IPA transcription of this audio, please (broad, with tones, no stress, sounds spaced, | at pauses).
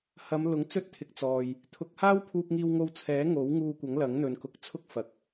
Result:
h ɐ˨˧ m l ʊ˨˥ ŋ t͡s ɵ˧ t̚ t̪ʰ ɪ˨˥ k̚ t͡s ɔː˨ j | t̪ʰ ʊ˨˥ k̚ h aː˥ w pʰ uː˧ p̚ ŋ iː˧ w ŋ o˧ w t͡sʰ ɛː˨˥ ŋ o˨˥ w ŋ uː˧ kʷ ɐ˨˥ ŋ l ɐ˨˥ ŋ n̪ ɵ˨ n k ʊ˨˥ k̚ t͡sʰ ʊ˥ k̚ f ɐ˨ k̚